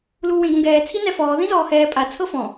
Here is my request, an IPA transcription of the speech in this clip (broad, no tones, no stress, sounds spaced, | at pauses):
l uː w ẽ ɡ õ ɡ ɛː t͡sʰ i n ɛ f ɔː ð ĩ z ɔː h ɛː pʼ a t͡sʰ ɤ f ɔ̃